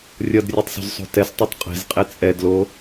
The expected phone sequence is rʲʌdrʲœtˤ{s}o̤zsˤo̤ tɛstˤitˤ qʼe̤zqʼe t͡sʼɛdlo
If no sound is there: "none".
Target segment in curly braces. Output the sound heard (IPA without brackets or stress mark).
s